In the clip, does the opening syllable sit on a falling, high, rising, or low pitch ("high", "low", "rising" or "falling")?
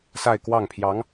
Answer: falling